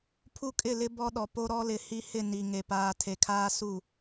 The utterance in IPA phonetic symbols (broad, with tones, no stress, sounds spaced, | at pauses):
pʰ u˦ kʼ ɪ˦˨ l ɪ˦ b ɔ˦ ɗ ɔ˨ p o˦ ɾ ɔ˦ l ɪ˨˦ h i˦ h ɪ˦˨ n i˨ ŋ e˨ p aː˨ tʰ e˨ kʰ aː˦ s u˦˨